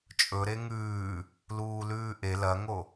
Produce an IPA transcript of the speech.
t͡ʃʼ ɵ ɾ e ŋ ʉː | l uː l ʉː ʔ e l ɐ ŋ o

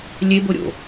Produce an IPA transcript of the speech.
lʲ e b o ɾʲ o̰

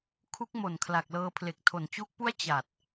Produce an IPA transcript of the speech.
kʰ u˦˥ k̚ m o˨˩ n kʰ l a˨˩ k̚ l ɤː˧ pʰ l e˨˩ k̚ tʰ o˨˩ n t͡ɕ u˦˥ k̚ p u˥˩ a̯ t͡ɕ a˨˩ t̚

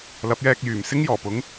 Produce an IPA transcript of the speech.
l ɐ˨˥ p̚ j ɛː˧ k̚ j yː˨˩ m s ɪ˥ ŋ j ɔː˨˩ p ʊ˨˥ ŋ

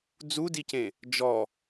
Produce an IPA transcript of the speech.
d͡z u d i c ẽ | d͡ʒ ɔ

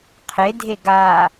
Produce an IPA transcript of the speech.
qʰ e dʱ e ɡ a

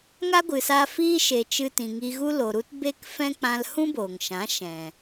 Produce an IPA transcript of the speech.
ŋ a˦ ɡʷ ɨ˨ s a˧ f iː˦ ʃ e˨ t͡ʃ ɨ˧ t ĩ˨ ŋ i˧ ɣ u˦ l o˨ ɾ u˦ t b e˦ k f ɛ̃˦ k͡p ã˧ l h ũ˦ b oː˨ ŋ ʃ ã˨˦ ʃ ɛ̃˨

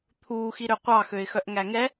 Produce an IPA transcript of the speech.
t̪ʰ uː x i ɾ ø qʷ ɑ x ø ɪ̯ x œ ʔ ŋ æ ŋ ɛ

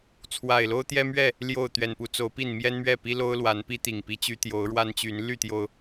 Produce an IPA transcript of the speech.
t͡sʰ w a˨˩ ɪ̯ l o˦ ʊ̯ t̪ j ɛ˦ m ɥ ɛ˥˨ | l j o˥˨ ʊ̯ t̪ ɥ ɛ˨˩ n p u˨˦ t͡s o˨˦ ʊ̯ p i˥˨ n m j ɛ˦ n m ɥ ɛ˥˨ p i˦ l o˦ ʊ̯ l w a˨˦ n p i˦ t̪ i˨˩ ŋ p i˦ t͡ɕ y˦ t̪ j o˨˦ ʊ̯ ɻ w a˦ n t͡ɕ y˨˦ n l y˥˨ t̪ j o˩ ʊ̯

